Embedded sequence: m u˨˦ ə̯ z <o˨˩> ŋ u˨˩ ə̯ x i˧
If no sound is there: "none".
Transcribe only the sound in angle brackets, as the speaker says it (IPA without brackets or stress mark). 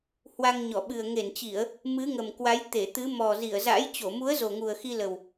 o˨˩